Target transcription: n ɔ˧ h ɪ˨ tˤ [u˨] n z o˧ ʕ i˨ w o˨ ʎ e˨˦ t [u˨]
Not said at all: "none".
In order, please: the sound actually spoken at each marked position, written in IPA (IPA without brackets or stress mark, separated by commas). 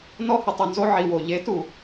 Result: u˨, u˨